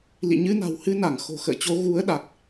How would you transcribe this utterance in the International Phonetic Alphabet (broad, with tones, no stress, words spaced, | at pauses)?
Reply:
lḭ˧˨ ɲɨ˧na̤˨˩whɨ˧na˧˩ŋ xo̤˨˩xə̰ː˧˨t͡ɕo˨˦ ɣu˨˦ə̯ ɗa˨˩k̚